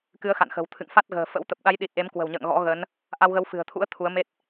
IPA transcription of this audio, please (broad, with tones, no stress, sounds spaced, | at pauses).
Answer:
k ɨ˨˦ ə̯ x a̰˧˨ n x ə̤˨˩ w t̪ʰ ɨ̰˧˨ ŋ f a˦˥ t̚ ɣ ə̤ː˨˩ f ə̰˧˥ w t̪ ə˨˩ p̚ ɗ a˨˦ j ɗ i˨˩ t̚ ʔ e˨˦ m k w ə̤˨˩ w ɲ ə̰ː˧˨ ŋ ɣ ɔ̰˧˥ ɣ ə˨˦ n | ʔ a˧ w ɣ ə˨˦ w f ɨ̤˨˩ ə̯ t̪ʰ ṵ˧˥ ə̯ t̪ʰ u˨˦ ə̯ m e˦˥ t̚